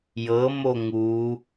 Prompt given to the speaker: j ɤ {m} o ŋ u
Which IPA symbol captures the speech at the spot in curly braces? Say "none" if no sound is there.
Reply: m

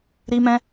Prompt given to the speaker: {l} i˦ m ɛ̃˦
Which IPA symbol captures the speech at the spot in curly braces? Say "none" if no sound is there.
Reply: ɾ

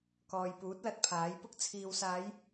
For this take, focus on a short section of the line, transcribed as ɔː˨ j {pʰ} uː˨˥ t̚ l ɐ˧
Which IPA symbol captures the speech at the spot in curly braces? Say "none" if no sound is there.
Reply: p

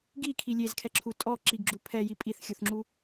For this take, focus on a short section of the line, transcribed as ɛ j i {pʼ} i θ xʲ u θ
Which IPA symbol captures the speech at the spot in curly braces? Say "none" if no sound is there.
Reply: pʼ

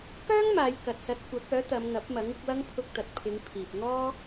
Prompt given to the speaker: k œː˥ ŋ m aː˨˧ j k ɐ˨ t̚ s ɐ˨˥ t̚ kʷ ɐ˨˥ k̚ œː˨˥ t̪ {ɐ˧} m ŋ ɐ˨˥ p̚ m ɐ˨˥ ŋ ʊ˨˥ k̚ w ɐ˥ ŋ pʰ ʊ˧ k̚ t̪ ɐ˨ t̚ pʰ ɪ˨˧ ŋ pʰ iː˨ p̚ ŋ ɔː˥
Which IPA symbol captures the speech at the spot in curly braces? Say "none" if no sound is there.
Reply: ɐ˨˧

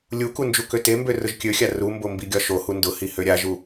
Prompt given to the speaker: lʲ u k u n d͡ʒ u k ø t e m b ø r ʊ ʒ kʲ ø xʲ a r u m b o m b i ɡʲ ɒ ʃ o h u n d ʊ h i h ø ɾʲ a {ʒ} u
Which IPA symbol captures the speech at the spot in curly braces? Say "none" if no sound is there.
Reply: ʒ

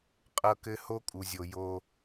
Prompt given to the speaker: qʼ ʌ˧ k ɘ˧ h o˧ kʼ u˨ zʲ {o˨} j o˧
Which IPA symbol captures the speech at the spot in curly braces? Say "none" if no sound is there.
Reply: o˨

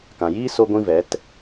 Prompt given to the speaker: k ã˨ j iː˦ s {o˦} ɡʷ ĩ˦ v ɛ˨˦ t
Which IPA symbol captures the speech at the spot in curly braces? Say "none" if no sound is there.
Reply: o˦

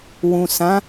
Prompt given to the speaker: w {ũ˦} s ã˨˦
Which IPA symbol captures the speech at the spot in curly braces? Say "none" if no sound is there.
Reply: ũ˨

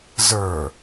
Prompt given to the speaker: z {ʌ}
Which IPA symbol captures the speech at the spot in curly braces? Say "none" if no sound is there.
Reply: ə˞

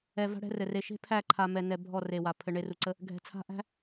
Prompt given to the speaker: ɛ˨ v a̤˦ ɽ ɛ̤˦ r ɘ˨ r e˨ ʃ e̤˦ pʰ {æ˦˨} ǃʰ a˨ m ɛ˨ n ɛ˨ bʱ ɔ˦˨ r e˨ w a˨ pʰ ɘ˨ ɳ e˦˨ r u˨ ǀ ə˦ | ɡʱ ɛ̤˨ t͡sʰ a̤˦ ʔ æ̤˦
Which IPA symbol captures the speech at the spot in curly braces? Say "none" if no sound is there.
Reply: æ˦˨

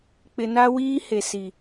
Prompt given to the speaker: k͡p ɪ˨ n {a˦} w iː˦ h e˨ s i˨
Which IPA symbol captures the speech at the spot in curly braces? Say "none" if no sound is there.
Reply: a˦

